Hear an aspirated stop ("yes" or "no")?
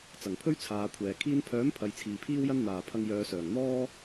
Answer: yes